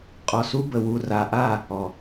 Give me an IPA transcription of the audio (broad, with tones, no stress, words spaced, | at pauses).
qʼɔ˨su˦bə˨ wu˨ra˨ʔa˦˨ | ɔ˨